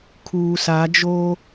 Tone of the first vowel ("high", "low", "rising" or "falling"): low